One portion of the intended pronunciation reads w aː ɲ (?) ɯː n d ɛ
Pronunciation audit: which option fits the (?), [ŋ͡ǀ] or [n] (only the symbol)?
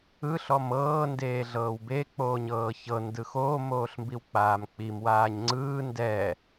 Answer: ŋ͡ǀ